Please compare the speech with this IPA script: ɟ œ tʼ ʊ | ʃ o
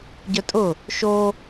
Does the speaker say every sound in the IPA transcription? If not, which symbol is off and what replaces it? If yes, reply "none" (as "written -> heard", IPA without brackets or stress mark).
none